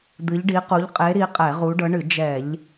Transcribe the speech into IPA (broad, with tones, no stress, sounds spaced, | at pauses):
d̪ ɨ˨˦ ʎ ɖ i˨˦ q u˨˦ ʎ qʼ e˨˦ ɾ i˨˦ qʼ ɛ˧˩˧ ʁ u˨˦ ɖ ɤ˨˦ ɳ ɨ˧˩˧ d͡ʒ ɛ˧˩˧ ʎ